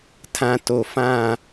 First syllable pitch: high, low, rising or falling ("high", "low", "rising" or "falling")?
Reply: low